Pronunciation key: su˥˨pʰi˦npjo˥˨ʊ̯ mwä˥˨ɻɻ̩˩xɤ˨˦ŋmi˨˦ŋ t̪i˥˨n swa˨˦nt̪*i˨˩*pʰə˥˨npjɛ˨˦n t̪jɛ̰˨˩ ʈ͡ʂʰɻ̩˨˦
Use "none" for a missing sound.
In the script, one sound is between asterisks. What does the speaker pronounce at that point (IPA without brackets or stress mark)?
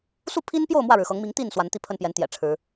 i˥˨